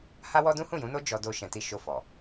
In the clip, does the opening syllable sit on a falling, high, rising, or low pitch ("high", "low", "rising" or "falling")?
high